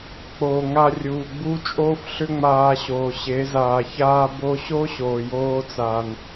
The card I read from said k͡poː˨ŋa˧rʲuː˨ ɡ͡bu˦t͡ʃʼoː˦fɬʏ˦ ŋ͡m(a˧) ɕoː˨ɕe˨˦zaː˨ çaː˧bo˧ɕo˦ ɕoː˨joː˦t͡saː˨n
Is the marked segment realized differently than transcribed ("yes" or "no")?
yes